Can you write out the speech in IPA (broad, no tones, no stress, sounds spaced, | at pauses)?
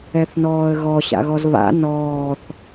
ɛ θ n ɔː ə̯ ɣ ɔ ɕ a̰ ɣ ɔ z β a̰ n ɔː θ